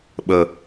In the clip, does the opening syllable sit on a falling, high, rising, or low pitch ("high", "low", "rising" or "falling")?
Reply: low